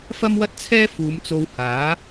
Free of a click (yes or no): yes